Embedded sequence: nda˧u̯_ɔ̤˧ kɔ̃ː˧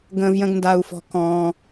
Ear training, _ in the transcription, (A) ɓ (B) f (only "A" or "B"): B